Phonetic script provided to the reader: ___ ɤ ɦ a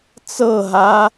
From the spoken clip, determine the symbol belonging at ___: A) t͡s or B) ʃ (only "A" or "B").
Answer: A